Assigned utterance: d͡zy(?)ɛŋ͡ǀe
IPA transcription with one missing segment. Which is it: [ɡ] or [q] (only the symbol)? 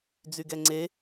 ɡ